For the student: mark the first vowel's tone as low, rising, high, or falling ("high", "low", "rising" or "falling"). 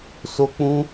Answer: high